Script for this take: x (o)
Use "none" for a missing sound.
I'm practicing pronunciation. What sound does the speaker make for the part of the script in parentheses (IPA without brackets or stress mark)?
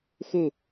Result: u